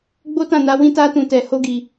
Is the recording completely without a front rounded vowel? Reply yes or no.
yes